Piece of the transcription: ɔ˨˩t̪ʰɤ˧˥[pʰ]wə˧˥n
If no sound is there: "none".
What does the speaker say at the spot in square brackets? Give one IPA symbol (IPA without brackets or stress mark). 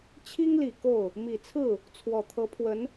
pʰ